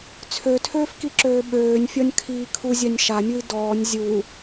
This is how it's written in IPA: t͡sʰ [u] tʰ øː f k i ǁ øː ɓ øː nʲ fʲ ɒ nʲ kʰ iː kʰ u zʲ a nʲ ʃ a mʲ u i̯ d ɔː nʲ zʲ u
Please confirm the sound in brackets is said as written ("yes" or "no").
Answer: no